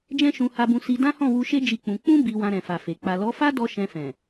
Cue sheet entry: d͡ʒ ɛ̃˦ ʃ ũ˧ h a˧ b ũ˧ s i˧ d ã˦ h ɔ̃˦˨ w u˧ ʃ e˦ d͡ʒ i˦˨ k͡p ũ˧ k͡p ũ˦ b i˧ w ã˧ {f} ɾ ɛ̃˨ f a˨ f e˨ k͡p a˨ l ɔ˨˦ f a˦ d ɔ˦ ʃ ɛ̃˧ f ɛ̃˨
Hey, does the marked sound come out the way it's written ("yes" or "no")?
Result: no